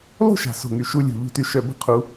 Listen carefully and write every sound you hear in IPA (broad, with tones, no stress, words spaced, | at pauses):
lˠṳ˥˨ʃa̤˨˩so̤˨˩ŋy˨˩ ʃu˧lʲṳ˨˩ ʎṳ˧ty˧ ʃœ˧bə̤˥˨ qʰu˧